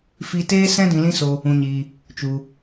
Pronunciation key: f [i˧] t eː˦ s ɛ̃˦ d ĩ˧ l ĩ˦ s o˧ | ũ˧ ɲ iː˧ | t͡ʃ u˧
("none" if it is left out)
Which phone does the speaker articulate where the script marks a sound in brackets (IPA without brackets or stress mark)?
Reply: i˧